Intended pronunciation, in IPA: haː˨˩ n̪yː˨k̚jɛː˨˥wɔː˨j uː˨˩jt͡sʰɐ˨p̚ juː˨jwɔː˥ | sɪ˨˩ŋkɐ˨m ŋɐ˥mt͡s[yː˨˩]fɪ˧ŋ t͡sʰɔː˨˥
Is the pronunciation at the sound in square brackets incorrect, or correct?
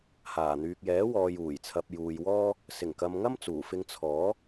incorrect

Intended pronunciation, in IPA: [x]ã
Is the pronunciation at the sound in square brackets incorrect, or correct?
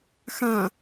correct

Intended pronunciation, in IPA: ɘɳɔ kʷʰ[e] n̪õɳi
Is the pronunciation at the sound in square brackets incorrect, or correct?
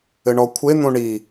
correct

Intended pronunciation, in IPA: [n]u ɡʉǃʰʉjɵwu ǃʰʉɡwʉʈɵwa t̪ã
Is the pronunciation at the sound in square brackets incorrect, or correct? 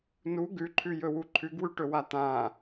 correct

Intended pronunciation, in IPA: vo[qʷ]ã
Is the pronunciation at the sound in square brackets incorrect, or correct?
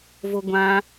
incorrect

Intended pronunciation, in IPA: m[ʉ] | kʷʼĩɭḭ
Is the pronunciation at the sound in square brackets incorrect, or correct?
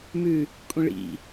correct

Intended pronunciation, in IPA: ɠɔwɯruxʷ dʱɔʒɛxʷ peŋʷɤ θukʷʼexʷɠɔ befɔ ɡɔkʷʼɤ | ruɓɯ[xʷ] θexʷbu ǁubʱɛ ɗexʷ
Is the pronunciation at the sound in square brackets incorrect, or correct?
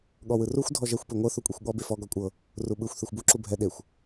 correct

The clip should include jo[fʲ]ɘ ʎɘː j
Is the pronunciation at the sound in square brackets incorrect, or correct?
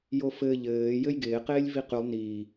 incorrect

